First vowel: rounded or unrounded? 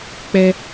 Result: unrounded